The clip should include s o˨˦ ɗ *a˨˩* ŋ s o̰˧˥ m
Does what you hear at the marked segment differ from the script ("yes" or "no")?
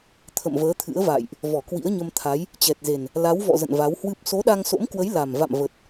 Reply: yes